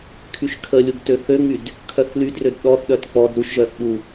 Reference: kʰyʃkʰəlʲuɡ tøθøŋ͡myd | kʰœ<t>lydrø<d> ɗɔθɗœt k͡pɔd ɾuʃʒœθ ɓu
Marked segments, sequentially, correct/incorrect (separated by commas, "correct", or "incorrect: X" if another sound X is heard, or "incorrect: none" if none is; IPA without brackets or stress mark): incorrect: θ, correct